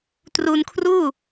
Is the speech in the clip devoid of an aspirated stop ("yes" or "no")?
no